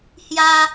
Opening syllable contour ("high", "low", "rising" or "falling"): high